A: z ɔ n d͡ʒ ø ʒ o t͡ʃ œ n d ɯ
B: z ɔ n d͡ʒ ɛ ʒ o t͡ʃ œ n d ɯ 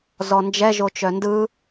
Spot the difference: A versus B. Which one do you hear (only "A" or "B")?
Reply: B